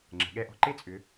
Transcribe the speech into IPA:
ŋ͡ǁ ə̤˩˧ ɠ ɛ˧ ʔ ɔ̤˧ ǃ e˥ t͡sʼ ʏ˧˥

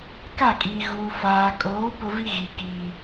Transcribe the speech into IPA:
k a˦˨ kʼ iː˨ ɣ uː˨ f aː˨ kʼ oː˨˦ p ʊ˦ v i˦ ɣ i˨ k iː˨

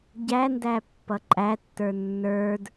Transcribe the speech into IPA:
ɟ æ n d æ pː ʌ ǃʼ æ tː ə˞ nː ə˞ d

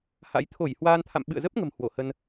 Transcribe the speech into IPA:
h a̰˧˥ j t̪ʰ o˧˩ j h w aː˧ n t̪ʰ a̰˧˨ m ɓ ɨ̰˧˨ ə̯ z ə˦˥ p̚ ŋ ə̤˨˩ m h w o˧˩ h ə˧ n

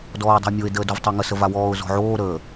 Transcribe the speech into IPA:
d ɔː ʊ̯ dˤ ə̤ ɪ̯ mʲ o ɪ̯ d əː d o v tˤ ɑ ŋ ə s ə v a w ɔː ʊ̯ z ɔ̤ ʕ oː ɾ əː

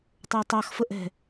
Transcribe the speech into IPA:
tˤ ə˞ tˤ ɑ x f ə ʔ ɛ̤

